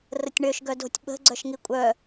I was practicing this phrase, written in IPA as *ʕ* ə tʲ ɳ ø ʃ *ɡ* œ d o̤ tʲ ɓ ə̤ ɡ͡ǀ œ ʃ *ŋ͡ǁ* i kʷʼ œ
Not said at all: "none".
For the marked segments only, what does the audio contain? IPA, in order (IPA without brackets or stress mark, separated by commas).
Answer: r, ɡ, ŋ